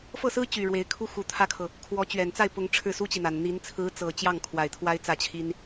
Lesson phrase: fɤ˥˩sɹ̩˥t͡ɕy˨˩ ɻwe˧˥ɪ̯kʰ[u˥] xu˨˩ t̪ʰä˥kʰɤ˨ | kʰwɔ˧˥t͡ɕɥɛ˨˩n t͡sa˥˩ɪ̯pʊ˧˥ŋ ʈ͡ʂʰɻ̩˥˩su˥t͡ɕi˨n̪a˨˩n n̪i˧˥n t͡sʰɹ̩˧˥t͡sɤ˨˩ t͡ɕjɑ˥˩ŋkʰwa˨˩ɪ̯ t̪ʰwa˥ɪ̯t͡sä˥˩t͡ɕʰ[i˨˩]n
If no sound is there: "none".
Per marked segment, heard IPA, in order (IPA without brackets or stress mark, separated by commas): u˥, i˥